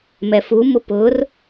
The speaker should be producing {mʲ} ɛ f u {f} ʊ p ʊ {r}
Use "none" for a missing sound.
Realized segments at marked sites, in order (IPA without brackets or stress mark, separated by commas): m, m, r